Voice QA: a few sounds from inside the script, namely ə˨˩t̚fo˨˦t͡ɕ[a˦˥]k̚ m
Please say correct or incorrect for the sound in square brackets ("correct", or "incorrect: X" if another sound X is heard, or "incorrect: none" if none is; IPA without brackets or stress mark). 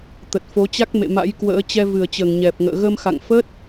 correct